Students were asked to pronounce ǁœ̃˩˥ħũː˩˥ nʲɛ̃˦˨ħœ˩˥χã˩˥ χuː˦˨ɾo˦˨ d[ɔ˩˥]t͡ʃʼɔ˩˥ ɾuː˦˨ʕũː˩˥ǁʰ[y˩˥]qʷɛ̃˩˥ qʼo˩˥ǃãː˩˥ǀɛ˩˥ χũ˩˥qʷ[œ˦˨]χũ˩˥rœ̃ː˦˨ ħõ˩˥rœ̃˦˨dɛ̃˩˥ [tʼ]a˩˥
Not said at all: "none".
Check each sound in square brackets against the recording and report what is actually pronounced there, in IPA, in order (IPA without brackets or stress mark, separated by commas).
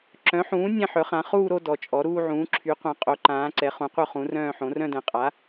ɔ˩˥, y˩˥, œ˦˨, qʼ